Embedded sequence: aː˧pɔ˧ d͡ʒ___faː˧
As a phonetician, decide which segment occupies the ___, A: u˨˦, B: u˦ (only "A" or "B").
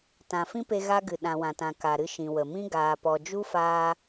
B